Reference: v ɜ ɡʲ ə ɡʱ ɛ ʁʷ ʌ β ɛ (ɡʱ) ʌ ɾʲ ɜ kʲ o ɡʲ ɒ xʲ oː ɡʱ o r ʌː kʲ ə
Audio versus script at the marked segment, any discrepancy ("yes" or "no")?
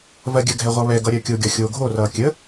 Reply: yes